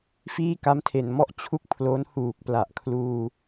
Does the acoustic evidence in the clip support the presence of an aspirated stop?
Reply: yes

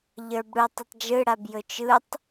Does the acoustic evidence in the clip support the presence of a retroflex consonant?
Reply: yes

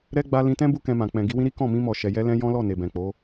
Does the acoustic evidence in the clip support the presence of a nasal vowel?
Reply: yes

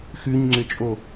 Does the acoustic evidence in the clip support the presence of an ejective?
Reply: yes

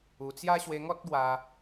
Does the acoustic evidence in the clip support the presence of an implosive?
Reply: no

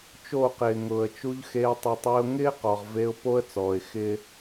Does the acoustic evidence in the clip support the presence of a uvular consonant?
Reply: yes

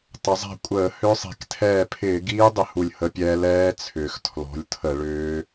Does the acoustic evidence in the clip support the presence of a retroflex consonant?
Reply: yes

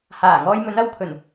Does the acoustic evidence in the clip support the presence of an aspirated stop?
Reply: yes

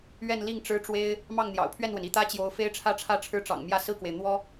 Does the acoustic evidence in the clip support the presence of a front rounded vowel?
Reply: no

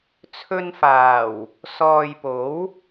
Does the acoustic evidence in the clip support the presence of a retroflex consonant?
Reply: no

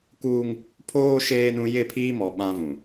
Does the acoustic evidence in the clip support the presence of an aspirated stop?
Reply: yes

